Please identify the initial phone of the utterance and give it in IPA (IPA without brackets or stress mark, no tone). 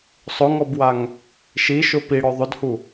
sˤ